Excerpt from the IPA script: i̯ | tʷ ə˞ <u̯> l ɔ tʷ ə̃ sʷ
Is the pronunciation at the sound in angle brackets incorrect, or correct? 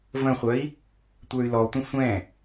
incorrect